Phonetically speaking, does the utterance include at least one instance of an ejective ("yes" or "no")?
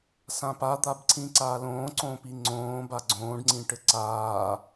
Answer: no